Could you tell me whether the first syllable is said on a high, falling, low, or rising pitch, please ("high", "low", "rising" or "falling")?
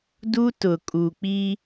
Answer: high